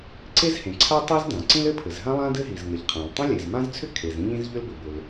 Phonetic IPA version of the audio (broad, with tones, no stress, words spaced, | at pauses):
ǀe˥zhẽ˩ǀʰa˥ tˤi˥zdã˩ ǀĩ˥l ɘ˥pʰɘ˩zɦã˥ lˠã˥dɘ˥ɦi˩z ŋə˩ʎ qʰã˩l tˤĩ˥lʲe˩zmã˥zt͡sʰʏ˥ kʰe˩zĩ˥ʎĩ˥z ʎʏ˥lbʏ˩bʏ˩l